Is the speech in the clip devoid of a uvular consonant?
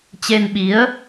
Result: yes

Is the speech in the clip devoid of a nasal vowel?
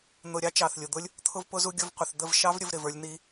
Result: yes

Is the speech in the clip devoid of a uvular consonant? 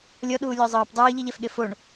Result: yes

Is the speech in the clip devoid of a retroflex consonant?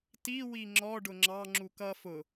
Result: no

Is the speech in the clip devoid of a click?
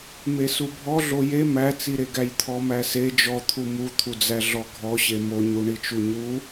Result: yes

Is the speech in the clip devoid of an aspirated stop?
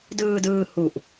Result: yes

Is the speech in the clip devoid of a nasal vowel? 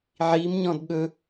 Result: no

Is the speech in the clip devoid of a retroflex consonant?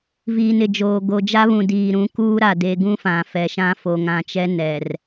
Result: yes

